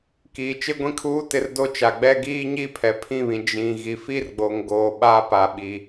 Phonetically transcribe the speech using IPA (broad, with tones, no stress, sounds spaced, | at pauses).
k iː˨ t͡ʃ ɪ˦ ɡʷ ĩ˦ kʰ uː˦ t ɪ˦ r d o˦ t͡ʃ a˨ ɡ͡b ɛ˦ ɡ iː˦ ɲ i˦ pʰ ɛ˨ pʰ ĩ˦˨ β ĩ˨ d͡ʒ ĩ˨ ɣ i˨ f i˦ r ɡ͡b o˨ ŋ ɡ oː˨ ɓ a˦ p a˨ ɓ i˨